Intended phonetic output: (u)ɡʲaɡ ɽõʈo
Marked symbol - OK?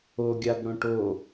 no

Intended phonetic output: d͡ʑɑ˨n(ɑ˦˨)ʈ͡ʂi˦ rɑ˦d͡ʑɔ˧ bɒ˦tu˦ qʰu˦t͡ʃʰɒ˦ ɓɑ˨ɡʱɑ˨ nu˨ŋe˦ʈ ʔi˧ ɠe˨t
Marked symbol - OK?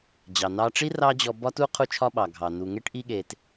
no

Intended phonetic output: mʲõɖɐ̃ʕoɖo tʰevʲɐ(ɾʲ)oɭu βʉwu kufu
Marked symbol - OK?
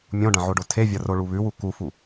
no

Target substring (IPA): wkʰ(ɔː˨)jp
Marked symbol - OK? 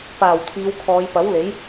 no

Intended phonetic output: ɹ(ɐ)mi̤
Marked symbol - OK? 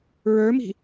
no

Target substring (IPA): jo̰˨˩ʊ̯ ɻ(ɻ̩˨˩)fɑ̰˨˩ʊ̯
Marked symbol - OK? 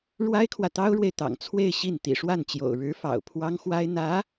no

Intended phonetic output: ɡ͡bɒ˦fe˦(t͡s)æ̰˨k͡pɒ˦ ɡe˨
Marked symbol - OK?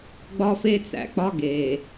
yes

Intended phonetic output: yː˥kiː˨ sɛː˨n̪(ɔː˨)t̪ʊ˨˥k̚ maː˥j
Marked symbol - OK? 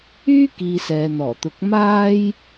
no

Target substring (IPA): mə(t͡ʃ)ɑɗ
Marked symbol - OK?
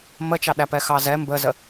yes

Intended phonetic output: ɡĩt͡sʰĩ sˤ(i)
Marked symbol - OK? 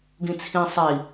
yes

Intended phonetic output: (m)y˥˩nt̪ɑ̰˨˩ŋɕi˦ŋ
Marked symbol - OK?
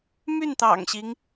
yes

